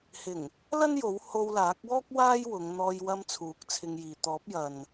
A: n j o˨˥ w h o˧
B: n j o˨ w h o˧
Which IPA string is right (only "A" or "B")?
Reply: A